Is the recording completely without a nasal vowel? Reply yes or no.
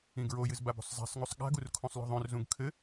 no